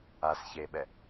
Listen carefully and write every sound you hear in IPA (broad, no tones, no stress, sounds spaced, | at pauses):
a s ç e ɓ ɛ